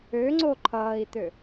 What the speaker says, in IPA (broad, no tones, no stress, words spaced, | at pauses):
øŋ͡ǀo ǃʰʌːi̯t̪ø